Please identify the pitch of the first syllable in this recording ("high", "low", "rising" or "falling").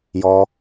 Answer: high